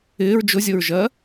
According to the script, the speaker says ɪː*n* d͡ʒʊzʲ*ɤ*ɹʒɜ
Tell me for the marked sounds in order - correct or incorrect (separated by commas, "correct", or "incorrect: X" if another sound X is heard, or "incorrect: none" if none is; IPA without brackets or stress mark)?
incorrect: ɹ, correct